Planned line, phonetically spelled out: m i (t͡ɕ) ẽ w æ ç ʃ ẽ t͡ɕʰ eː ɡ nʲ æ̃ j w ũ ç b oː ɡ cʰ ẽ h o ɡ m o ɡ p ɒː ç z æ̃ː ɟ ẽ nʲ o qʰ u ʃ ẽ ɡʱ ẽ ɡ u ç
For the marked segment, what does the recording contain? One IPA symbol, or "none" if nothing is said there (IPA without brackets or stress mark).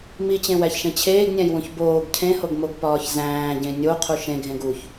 t͡ɕ